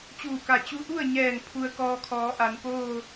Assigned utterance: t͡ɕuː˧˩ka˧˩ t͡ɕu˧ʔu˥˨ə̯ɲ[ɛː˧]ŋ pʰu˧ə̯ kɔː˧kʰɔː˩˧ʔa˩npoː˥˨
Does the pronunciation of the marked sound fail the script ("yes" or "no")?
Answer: yes